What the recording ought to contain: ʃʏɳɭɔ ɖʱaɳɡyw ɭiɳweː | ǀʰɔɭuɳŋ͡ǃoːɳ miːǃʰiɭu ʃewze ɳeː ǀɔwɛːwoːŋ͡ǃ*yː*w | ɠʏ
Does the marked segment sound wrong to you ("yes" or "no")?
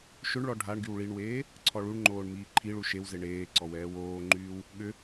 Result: no